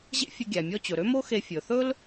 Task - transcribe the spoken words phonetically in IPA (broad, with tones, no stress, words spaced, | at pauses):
ʑḛ˥fʲɵ˧ ɡʲæ˩mʲɔ˧ t͡ɕɵ˩ɾø˥mo˥xe˧ fʲɵ˩θɵ˥l